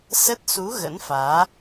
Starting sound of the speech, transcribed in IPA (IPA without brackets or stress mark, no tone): s